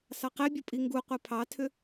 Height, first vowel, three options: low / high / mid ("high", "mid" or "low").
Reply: low